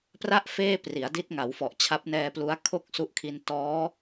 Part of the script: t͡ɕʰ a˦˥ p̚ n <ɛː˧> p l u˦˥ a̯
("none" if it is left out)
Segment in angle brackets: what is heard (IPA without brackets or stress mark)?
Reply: ɛː˧